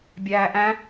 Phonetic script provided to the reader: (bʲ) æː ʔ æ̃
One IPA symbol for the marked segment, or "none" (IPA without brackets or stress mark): bʲ